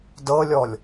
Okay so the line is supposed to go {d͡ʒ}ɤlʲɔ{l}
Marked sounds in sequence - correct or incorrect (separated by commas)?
incorrect, incorrect